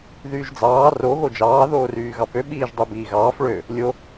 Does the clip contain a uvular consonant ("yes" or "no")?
no